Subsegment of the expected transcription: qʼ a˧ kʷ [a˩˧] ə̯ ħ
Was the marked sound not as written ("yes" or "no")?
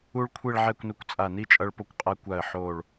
yes